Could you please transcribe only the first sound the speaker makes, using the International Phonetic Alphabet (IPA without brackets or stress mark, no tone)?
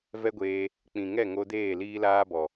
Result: v